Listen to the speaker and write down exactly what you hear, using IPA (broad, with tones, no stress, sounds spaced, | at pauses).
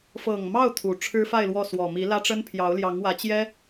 f ɤ˨˩ ŋ m ɑ˥˩ ʊ̯ t̪ʰ u˨˩ ʈ͡ʂʰ ɻ̩˥ f a˥˧ ɪ̯ l w ɔ˥˩ s w ɔ˨˩ m i˧˥ l ä˥ ʈ͡ʂ ə˥ n pʰ j ɑ˧˥ ʊ̯ l j ɑ˧˥ ŋ w ä˧˥ t͡ɕ j ɛ˥